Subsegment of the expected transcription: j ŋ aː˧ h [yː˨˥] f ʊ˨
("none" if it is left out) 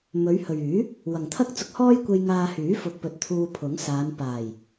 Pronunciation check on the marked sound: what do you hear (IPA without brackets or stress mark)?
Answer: yː˨˥